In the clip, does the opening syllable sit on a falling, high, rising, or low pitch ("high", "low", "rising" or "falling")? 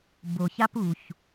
low